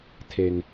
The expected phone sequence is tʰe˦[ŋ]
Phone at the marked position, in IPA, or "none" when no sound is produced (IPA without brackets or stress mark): ŋ